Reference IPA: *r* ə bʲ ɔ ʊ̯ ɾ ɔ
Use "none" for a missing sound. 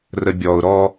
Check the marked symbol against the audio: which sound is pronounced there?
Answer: r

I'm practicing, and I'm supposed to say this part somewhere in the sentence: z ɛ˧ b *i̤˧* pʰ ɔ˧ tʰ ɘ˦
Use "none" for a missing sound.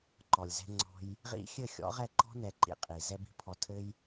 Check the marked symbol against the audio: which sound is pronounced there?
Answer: i̤˧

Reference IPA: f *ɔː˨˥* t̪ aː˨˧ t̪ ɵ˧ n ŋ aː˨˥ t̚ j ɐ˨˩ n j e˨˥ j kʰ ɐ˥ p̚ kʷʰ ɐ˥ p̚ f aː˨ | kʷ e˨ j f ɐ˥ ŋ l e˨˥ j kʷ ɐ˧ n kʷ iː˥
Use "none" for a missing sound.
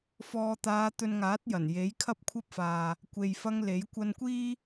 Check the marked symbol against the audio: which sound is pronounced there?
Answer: ɔː˨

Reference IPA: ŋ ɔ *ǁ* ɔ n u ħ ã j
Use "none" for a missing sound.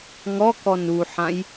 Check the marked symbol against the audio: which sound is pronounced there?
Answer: k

